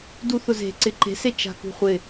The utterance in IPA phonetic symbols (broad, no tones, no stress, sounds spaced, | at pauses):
d u θ ʊ z e̤ ǀ ɪ ǃ e̤ s e t͡ʃ a̤ k ṳ χʷ ɪ